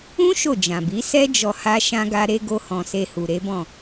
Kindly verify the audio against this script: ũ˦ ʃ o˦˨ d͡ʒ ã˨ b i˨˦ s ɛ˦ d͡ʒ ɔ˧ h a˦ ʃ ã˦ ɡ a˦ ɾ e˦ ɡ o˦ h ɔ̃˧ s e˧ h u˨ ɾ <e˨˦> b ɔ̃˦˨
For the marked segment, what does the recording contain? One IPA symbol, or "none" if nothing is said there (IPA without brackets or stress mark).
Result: e˨˦